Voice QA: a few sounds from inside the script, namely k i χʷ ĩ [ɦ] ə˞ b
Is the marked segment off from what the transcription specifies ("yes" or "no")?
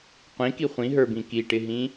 no